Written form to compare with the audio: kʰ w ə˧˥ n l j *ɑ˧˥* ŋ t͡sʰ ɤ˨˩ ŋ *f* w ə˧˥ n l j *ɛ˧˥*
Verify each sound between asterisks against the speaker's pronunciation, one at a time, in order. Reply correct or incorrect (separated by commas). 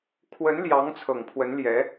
correct, incorrect, correct